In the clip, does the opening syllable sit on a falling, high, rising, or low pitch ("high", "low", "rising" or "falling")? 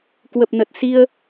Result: low